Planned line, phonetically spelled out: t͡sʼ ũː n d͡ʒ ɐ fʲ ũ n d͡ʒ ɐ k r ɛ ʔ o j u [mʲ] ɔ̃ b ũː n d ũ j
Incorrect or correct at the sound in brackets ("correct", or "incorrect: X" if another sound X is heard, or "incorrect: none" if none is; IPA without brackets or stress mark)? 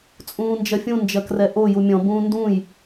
correct